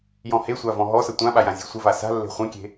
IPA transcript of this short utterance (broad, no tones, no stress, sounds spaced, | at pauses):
j ɔ̃ h e sʷ a v ɔ̃ ɦ ɔ s ə tʷ ã ɓ a j ã zʲ e̤ sʷ ə v a s a̤ lː e̤ χʷ ẽ kʲ e̤